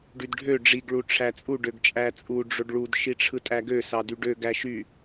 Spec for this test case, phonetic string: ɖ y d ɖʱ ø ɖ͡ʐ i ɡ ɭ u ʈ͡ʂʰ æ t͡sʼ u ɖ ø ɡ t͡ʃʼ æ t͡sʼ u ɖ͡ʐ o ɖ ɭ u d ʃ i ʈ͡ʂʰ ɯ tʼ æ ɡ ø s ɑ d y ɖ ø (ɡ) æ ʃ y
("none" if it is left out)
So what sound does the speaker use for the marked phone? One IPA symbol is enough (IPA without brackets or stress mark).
ɡ